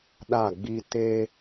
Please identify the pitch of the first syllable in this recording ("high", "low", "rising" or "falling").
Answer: falling